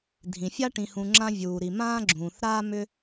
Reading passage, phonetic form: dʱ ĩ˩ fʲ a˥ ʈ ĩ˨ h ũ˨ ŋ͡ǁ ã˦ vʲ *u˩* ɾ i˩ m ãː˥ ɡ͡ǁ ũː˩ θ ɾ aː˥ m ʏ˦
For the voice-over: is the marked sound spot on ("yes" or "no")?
no